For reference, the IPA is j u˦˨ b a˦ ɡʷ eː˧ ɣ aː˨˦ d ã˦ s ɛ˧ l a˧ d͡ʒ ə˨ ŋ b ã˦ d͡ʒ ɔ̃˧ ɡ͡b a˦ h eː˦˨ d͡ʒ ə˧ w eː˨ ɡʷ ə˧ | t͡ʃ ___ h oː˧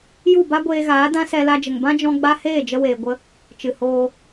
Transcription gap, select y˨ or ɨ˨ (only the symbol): ɨ˨